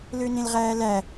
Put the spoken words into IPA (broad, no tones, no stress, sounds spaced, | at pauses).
l ø n ẽ l ʁ æː l æ